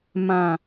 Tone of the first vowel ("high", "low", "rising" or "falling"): low